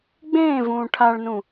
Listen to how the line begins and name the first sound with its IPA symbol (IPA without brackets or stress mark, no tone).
ɡ͡b